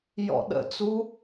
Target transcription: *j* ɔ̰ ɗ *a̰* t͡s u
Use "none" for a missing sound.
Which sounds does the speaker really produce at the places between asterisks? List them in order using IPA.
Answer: j, ə̰

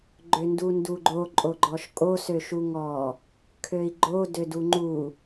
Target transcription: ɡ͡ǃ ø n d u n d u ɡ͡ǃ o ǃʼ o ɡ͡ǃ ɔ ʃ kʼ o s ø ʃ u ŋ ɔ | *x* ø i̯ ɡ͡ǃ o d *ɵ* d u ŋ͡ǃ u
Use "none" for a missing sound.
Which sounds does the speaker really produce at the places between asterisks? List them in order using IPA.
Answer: kʰ, ø

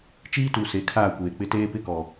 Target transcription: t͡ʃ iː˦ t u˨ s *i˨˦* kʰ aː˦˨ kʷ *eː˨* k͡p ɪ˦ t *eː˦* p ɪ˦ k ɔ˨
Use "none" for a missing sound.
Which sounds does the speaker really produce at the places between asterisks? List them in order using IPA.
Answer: e˨˦, eː˨, eː˦

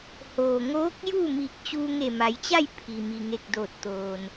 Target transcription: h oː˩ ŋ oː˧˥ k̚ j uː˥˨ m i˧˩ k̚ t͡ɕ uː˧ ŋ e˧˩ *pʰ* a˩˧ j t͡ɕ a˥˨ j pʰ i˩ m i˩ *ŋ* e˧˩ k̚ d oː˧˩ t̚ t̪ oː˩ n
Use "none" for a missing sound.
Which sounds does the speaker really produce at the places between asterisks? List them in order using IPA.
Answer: m, ŋ

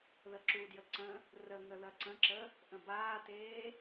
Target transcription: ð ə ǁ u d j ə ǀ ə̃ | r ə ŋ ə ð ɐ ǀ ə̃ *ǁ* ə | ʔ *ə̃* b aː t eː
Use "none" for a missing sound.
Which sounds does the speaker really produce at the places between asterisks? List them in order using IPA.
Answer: ǁ, ə̃

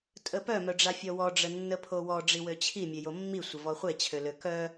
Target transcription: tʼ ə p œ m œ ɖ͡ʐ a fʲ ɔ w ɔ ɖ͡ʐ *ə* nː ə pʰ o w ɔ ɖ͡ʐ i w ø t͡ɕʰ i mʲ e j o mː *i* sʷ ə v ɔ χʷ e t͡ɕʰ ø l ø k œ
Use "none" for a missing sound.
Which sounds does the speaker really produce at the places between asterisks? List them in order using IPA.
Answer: ə, i

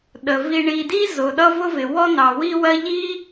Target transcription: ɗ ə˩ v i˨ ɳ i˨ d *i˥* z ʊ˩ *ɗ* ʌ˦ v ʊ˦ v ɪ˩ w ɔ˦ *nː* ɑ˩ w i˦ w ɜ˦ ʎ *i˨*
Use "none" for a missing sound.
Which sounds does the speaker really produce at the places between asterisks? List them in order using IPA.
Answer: i˥, ɗ, n, i˥

